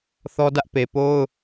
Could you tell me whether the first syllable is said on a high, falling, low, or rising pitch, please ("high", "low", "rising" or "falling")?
high